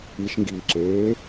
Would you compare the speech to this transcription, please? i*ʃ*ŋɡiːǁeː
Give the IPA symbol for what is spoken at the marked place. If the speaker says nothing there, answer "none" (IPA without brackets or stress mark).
ʃ